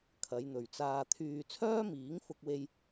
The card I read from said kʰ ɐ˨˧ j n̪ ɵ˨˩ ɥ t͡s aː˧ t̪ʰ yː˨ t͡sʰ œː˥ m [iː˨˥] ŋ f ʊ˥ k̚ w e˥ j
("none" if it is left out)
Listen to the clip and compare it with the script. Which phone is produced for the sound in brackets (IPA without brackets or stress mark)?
iː˨˥